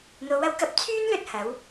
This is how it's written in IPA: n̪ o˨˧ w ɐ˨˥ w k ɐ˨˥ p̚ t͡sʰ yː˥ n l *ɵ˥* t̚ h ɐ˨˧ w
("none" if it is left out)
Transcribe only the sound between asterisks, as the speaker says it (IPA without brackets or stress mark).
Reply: ɵ˧